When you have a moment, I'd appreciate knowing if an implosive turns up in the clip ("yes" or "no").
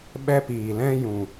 yes